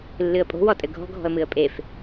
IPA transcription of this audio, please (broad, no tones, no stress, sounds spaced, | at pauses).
lː ɨ ə̯ pʼ o̤ w ɔ tʼ ɘ ɡʱ ɔ̤ ɡʱ ɔ̤ ə̯ m ɨ ə̯ pʼ e f